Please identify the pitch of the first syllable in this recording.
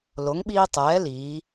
rising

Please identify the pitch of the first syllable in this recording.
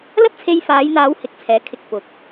high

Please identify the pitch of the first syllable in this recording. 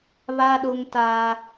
high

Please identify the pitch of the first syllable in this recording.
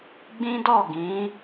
high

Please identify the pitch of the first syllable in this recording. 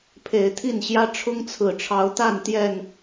rising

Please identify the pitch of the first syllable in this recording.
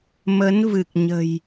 rising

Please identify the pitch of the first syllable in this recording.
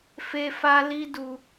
high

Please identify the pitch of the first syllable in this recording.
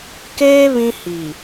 high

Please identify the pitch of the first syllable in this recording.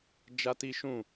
high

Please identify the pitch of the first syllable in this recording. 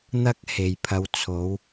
high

